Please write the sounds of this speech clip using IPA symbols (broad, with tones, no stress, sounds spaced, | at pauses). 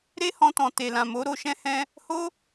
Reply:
ɾ e˦ h ɔ̃˧ t ɔ̃˨ t e˨ l ã˨ m o˨˦ ɾ o˧ ʃ ɛ̃˧ h ɛ̃˧ | h o˦